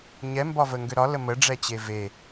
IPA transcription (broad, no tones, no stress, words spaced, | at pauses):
ɲɛmbɒvəŋɡø ɾɒlə məɖ͡ʐɛt͡ɕe ve